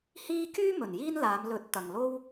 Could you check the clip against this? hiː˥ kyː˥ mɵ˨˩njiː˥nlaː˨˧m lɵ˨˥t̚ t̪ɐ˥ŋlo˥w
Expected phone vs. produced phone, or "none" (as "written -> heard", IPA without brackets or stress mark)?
ɐ˥ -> ɐ˨